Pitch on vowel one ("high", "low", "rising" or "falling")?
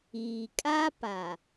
low